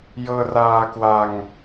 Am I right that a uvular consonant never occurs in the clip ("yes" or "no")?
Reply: yes